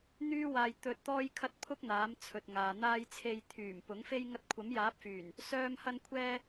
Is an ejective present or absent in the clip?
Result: absent